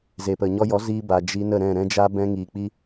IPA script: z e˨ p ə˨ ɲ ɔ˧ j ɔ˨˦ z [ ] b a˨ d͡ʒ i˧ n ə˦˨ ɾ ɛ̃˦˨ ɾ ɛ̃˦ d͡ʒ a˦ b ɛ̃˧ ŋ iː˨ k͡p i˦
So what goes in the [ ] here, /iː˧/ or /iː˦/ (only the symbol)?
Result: iː˧